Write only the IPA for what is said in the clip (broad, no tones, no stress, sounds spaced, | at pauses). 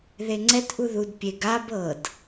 ð e ŋ͡ǀ ɛ t ʔ u ð u d pʲ e ɡ a b ɤ d